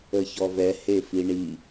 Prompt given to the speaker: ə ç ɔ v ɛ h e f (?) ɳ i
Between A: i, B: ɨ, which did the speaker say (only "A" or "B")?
A